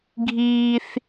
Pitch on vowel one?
high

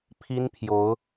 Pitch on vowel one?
high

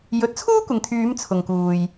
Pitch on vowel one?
rising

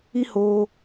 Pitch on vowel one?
high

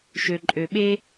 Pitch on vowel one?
low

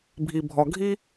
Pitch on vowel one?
low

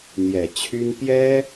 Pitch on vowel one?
low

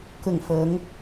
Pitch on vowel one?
falling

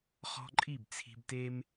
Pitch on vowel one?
high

